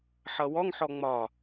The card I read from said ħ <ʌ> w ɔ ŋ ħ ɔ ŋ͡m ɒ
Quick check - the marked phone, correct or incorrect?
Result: correct